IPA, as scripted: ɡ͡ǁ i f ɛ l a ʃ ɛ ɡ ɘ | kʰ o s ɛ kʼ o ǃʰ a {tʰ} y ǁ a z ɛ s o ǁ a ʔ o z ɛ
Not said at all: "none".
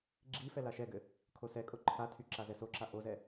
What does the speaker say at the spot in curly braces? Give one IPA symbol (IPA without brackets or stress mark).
tʰ